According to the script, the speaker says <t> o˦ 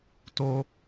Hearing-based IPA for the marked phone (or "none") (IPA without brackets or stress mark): t